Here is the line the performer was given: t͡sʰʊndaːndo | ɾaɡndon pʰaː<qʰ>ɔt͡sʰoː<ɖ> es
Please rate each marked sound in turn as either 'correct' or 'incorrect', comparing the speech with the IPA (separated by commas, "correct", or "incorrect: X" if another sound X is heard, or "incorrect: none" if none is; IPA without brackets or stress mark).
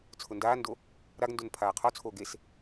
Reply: correct, incorrect: ɡ